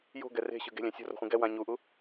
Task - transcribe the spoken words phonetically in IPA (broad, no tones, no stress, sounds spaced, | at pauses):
j o̤ ɡ ɛ r e̤ ɕ ɯ ɡ e̤ lʲ ɛ̃ sʲ o̤ r o̤ χʷ ĩ ɡ ɛ w ã ɲ u ʔ u